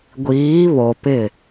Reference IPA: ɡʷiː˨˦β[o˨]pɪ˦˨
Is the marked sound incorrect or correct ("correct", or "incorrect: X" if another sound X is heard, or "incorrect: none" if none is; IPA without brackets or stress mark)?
correct